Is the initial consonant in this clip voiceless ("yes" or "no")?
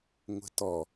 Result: no